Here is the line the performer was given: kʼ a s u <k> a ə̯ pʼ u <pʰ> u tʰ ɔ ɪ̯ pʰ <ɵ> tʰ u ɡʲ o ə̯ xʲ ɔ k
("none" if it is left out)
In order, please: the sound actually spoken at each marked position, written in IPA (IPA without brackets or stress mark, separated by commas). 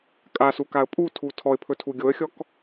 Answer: k, tʰ, ɵ